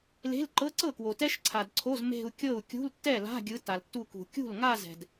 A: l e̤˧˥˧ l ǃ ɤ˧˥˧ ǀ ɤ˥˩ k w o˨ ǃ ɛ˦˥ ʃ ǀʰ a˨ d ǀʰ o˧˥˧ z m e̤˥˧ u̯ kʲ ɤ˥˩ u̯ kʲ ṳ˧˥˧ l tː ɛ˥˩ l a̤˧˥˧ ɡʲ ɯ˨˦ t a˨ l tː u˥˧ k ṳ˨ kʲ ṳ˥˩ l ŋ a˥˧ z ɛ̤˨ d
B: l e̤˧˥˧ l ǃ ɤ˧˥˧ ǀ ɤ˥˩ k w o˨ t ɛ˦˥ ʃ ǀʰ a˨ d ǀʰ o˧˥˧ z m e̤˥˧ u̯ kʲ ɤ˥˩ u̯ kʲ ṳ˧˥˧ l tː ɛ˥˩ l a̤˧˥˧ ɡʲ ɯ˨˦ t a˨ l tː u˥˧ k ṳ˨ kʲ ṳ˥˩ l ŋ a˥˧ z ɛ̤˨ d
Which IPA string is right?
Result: B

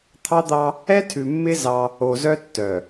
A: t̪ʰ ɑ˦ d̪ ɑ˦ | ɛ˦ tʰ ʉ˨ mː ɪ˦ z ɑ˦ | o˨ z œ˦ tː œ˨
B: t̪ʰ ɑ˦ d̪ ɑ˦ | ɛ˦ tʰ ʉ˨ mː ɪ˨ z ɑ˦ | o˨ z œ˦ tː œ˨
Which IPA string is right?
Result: A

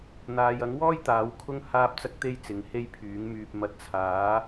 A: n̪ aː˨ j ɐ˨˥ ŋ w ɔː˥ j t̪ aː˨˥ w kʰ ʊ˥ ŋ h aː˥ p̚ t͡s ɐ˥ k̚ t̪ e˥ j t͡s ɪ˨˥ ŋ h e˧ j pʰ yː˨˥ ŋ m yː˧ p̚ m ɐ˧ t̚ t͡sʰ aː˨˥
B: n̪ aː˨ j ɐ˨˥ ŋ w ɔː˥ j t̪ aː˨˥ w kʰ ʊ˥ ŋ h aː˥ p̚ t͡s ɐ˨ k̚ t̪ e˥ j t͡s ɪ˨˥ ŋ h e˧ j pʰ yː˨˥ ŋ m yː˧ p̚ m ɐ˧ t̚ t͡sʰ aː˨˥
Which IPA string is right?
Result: A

